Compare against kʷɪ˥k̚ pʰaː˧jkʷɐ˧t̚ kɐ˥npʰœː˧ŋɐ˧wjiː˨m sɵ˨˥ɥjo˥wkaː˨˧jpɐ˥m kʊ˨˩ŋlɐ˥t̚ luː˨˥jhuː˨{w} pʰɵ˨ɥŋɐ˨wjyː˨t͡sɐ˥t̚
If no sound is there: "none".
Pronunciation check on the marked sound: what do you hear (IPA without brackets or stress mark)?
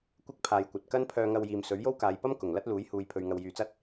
j